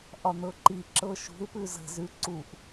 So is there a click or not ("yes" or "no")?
yes